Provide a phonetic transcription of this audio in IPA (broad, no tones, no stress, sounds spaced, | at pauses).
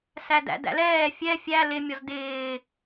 s æ d æ̰ d æ̰ l ɛː fʲ ɛ fʲ æ l ɪ mʲ ɔ z d ɪː